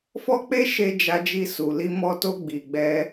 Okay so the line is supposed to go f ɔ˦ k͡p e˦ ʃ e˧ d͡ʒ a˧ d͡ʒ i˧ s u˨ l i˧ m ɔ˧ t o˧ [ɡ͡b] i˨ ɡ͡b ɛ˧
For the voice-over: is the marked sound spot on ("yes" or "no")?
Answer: yes